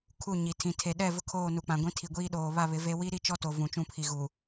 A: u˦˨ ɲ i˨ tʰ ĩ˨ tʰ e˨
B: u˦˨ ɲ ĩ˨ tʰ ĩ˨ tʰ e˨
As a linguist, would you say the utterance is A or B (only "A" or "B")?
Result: A